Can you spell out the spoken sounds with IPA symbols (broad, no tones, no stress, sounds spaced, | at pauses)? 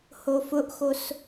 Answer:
h o f ʊ ʔ x o s